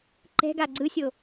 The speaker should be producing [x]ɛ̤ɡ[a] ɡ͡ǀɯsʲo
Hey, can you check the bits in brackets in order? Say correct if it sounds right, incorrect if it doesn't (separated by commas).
incorrect, correct